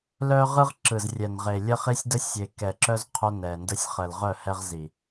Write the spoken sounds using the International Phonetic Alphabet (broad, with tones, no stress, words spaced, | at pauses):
lœ˦ ʁɯ˦ʁǁɯ˨zrʲɛ˨n ʁe˨lʲə˦χi˦sʲ də˦sʲe˨kɛ˨ǁœ˦z qʰœ˦nɛ˨ndə˦sʲ χə˨lʁœ˦˨hɛ˦ʁ zi˨